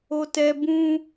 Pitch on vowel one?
low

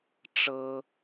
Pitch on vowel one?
high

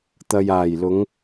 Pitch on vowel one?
low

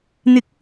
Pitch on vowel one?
rising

